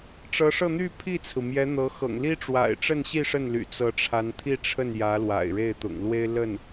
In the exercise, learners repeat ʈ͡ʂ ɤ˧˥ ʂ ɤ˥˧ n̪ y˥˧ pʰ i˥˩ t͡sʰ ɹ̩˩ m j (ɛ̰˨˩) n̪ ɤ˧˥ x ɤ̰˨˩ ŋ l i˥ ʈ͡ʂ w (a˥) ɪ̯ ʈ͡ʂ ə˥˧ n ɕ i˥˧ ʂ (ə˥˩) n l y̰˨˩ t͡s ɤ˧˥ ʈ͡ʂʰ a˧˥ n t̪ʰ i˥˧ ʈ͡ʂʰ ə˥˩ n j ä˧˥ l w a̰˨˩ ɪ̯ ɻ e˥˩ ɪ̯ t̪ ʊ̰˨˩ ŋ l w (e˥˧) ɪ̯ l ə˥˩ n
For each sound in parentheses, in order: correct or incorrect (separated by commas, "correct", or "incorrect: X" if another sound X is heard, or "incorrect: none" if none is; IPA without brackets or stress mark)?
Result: incorrect: ɛ˧˥, incorrect: a̰˨˩, correct, incorrect: e˥